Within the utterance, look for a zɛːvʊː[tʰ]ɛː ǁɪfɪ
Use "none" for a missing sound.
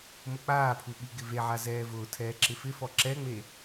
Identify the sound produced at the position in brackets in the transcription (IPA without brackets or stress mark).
tʰ